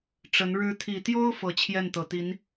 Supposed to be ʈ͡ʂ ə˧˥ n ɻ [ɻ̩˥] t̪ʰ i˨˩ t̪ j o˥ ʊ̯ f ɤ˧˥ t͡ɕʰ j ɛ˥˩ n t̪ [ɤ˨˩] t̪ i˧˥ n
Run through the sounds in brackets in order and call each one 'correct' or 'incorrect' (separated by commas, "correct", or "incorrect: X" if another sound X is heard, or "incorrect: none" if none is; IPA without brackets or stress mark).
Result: incorrect: ɻ̩˧˥, correct